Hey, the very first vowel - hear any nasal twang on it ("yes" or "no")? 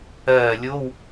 no